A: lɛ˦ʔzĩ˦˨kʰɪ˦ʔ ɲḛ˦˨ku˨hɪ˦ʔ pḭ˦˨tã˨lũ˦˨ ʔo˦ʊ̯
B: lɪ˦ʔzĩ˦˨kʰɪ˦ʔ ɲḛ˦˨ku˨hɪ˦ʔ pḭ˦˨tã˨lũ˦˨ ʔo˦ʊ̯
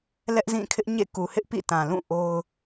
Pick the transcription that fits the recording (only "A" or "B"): A